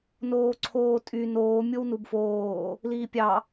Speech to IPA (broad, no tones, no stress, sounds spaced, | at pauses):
n oː ǀʰ oː tʼ y n oː mʲ o w n u b f oː | l iː pʲ ɑ